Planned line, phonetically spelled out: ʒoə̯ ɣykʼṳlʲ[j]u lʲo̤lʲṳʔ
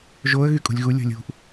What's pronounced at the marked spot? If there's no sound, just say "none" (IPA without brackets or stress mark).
ɣ